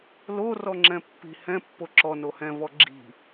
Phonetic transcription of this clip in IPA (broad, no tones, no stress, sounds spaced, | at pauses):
l o r ɔ ŋ͡ǁ ɛ̃ pː i̤ h ɛ̃ pː o ǁ ɔ n o h ɛ̃ v ɔ ɡ͡ǁ i̤